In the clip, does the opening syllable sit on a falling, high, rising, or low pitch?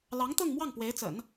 rising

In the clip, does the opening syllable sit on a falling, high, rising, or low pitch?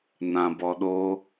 low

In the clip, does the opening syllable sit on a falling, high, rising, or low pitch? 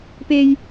high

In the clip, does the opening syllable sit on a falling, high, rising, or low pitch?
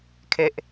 low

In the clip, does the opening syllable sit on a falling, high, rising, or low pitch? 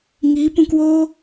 rising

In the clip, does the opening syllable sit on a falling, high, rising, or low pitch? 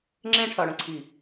high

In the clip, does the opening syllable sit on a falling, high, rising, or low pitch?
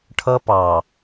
high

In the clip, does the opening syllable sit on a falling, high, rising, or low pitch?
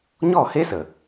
falling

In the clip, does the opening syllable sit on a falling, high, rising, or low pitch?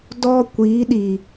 high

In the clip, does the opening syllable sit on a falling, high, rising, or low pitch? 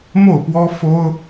falling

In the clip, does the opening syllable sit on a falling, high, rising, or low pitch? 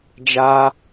high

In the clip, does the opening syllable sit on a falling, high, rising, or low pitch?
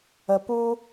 low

